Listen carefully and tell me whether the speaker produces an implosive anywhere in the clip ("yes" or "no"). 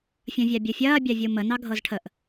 no